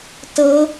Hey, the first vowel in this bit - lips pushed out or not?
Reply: no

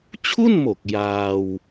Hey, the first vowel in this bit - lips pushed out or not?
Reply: yes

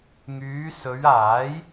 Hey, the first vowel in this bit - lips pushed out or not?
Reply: yes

